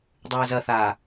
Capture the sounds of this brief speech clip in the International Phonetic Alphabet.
dˤ ʉː z ɐ θ aː

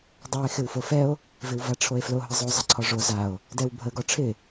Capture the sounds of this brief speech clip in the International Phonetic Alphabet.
dˤ o e̯ x ɪ w f o f ɛ o̯ | v ɪ w v a ʈ͡ʂʰ o e̯ f l o ɦ ə zˤ o zˤ ə ǀʰ ɔ ʐ o z a o̯ | d ɛ w bʱ ə ɡ ɔ ʈ͡ʂʰ ɪ

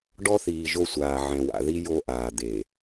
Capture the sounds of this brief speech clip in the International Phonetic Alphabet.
ɖ ɔ˦ θ iː˨ ʒ o˦ sʷ aː˨ ʕ ɛ̃˨ w a̰˨ ð i˦ j o˦ ʔ aː˨ d̪ e˨

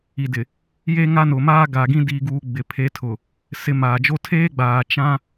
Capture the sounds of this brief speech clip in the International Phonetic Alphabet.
i˨ d ɪ˨ | j e˦ ŋ a˦ n ʊ˨ m aː˦ ɡ a˨ ɡ ĩ˦ d i˨ ɡ uː˨ ɡ͡b ɪ˨ pʰ e˨˦ tʰ ʊ˨ | s ɪ˨˦ m aː˨ d͡ʒ o˦ tʰ eː˦ ɡ͡b aː˨ t͡ʃ ã˦

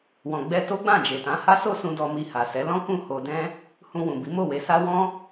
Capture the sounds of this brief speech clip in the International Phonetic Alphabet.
w ɔ̃˨ ɡ͡b ɛ˧ t o˦ ɡ͡b ã˦˨ d͡ʒ e˨ t ã˨˦ h a˦ s o˦˨ s ũ˧ d ɔ˧ m i˧ h a˨ s ɛ˨˦ l ɔ̃˦ k ũ˦˨ h o˧ d ɛ̃˦ | h ũ˧ w ũ˨ b i˨˦ m o˦˨ w e˨˦ s a˦ w ɔ̃˦

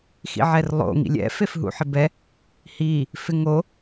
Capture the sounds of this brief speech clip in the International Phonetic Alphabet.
x ḭ ʕ ɛ r lˠ o̰ ŋ ḭ lʲ ɛ̰ f e f ɦ ṵ ħ ɪ b ɛ | h i | f ɪ ŋ o

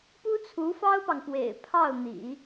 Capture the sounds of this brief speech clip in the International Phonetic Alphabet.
p u˥ t͡sʰ u˧˥ f ɑ˥ ʊ̯ p ɑ˨ ŋ p w ḛ˨˩ ɪ̯ pʰ ɑ˥˩ ʊ̯ n̪ ḭ˨˩˦

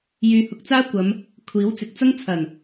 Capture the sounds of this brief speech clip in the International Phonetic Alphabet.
j yː˧ h ʊ˧ k̚ t͡s aː˥ kʷ ɐ˨˧ m | kʷʰ iː˨˥ w t͡s ɪ˨˥ k̚ t͡s ɐ˥ ŋ t͡sʰ ɐ˨˩ n

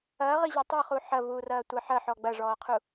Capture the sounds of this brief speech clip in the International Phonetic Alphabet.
ɐː ʁ i ʑ ɐ tˤ ə χ u ħ ɐ v uː r ɐː tʷ ɐ ħ ɐ ħ ɔ ɡ͡b ɐ ʐ ɔː qʰ u

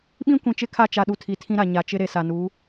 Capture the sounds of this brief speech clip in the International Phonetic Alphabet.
ɓ ĩ˦ kʷ ĩ˨ t͡ʃ ɪ˦ kʰ a˦˨ t͡ʃ a˨ ɗ u˨ tʰ i˨ tʰ ĩ˦ ɾ a˨ ɲ a˨ t͡ʃ ɪ˦ ɾ e˨ s a˨ n u˨˦

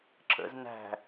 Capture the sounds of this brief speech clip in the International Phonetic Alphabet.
ǁ ə̰ z n æ̤

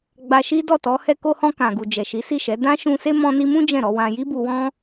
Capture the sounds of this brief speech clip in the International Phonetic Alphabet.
ɡ͡b a˧ ʃ i˦ d ɔ˦˨ t ɔ˨˦ h ɛ˧ k o˧ h ɔ̃˧ k ã˨ ɡ u˨ d͡ʒ ɛ˨ ʃ i˨˦ s i˦˨ ʃ ɛ˨˦ d ã˦ ʃ ũ˧ s e˦ m ɔ̃˧ n i˧ m ũ˦ d͡ʒ ɛ̃˦˨ ɾ ɔ˨˦ w ã˧ j i˦ b u˧ w ɔ̃˦

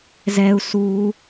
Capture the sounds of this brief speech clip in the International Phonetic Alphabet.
z ɛ u̯ s uː

